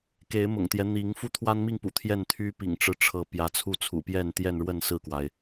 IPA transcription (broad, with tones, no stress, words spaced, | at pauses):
ke˨˦ɪ̯mʊ̰˨˩ŋt̪jɛ˦ n̪i˨˦ŋ fu˦t̪ʰwa˦nmi˥˨ŋpṵ˨˩ t̪ʰjɛ˥˨nt̪ʰy˦ pḭ˨˩ŋʈ͡ʂɻ̩˦ʈ͡ʂʰɤ˨˦ pjä˨˦t͡sʰu˥˨t͡sʰṵ˨˩pjɛ˥˨n t̪jɛ˥˨nɻwə˥˨nsɹ̩˥˨kwa˩ɪ̯